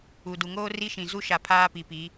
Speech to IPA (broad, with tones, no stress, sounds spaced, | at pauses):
u˨ d u˨ ŋ oː˦ r i˦ ʃ ĩ˨ z u˦ ʃ a˨ pʰ aː˦ p i˨ p i˨˦